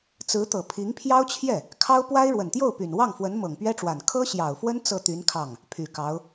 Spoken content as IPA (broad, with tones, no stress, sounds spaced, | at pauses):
t͡s ɹ̩˧˥ t̪ ɤ˨˩ pʰ i˧˥ ŋ pʰ j ɑ˥ ʊ̯ t͡ɕʰ j ɛ˥˩ | kʰ ɑ˥ ʊ̯ p w a˥ ɪ̯ ɻ w ə˨˩ n t̪ j o˥˩ ʊ̯ p y˨˩ n w ɑ˥˩ ŋ f w ə˧˥ n m ɤ˨˩ ŋ p ɥ ɛ˥ ʈ͡ʂ w a˨˩ n kʰ ɤ˥ ɕ j ɑ˨˩ ʊ̯ f w ə˥ n t͡s ɤ˥˩ t̪ y˧˥ n kʰ ɑ˥˩ ŋ | pʰ y˨˩ k ɑ˧˥ ʊ̯